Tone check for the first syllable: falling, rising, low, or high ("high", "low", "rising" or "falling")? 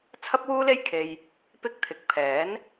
high